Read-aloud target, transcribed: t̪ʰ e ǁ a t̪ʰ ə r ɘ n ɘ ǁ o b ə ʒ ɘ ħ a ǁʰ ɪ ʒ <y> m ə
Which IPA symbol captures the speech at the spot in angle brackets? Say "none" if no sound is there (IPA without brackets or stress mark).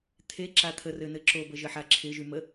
y